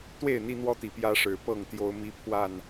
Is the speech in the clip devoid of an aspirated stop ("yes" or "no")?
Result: no